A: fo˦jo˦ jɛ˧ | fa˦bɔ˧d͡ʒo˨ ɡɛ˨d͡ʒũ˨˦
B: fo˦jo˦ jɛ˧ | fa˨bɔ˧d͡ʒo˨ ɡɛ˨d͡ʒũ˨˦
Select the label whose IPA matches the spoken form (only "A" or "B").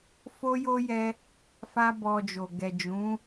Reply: A